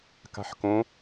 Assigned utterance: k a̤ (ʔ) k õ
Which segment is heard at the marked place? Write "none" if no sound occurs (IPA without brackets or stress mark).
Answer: ħ